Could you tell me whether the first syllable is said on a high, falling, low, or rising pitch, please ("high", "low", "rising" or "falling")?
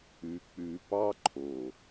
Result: low